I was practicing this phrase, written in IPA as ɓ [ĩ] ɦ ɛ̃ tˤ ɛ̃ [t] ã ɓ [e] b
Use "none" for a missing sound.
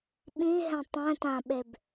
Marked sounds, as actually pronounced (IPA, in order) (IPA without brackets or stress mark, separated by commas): ĩ, t, e